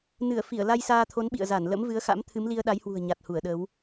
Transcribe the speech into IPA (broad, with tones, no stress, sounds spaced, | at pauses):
n ɨ˧˩ ə̯ f i˧˩ ə̯ l a˧ j s aː˧ t̪ʰ o˨˦ n ɓ ḭ˧˨ ə̯ z a˧˩ n l ə̰˧˥ m v ɨ˨˦ ə̯ x a̰˧˥ m t̪ʰ ɨ˨˦ m l i˧ ə̯ ɗ a˨˦ j h w ṳ˨˩ ə̯ ɲ a˨˩ t̚ h u˧˩ ə̯ ɗ ə˨˦ w